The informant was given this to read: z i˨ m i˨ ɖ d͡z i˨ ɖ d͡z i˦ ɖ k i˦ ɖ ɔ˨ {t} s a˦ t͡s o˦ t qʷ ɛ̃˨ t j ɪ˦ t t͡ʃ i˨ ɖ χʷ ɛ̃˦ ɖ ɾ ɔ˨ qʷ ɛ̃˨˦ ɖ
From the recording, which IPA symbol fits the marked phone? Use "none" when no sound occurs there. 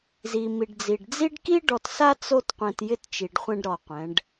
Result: t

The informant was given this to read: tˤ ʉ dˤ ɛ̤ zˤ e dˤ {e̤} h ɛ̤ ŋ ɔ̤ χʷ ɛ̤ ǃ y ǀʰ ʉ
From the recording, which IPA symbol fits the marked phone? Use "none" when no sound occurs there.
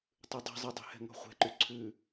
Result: e̤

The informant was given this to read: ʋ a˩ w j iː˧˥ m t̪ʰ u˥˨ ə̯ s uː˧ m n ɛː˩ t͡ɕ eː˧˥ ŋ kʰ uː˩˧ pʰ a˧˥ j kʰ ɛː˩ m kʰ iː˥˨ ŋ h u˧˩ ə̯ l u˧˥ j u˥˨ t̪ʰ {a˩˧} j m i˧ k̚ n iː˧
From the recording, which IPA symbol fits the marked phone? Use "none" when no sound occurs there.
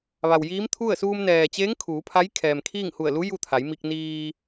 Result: a˩˧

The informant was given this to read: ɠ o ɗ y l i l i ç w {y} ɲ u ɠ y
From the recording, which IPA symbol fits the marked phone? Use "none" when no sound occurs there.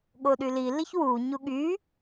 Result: u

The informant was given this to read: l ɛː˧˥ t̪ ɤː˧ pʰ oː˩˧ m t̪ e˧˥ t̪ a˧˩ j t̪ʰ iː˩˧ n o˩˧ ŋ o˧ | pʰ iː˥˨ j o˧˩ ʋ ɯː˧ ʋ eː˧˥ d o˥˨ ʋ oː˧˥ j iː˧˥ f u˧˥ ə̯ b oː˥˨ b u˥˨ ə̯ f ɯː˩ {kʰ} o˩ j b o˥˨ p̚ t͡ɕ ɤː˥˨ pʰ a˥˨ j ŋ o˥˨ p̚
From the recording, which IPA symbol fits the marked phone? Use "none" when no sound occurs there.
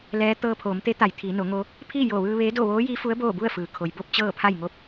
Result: kʰ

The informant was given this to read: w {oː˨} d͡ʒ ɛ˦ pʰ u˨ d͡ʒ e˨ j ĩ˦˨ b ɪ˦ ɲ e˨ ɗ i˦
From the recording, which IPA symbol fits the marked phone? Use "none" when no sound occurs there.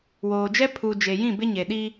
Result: oː˨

